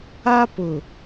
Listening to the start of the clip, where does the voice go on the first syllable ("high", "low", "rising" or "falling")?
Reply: high